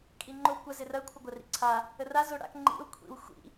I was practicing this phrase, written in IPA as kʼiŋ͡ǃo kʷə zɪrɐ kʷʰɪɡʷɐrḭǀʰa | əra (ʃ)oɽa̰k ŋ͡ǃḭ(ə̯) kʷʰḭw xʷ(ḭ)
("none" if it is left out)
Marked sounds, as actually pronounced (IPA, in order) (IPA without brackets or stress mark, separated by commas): z, ʊ̯, ḭ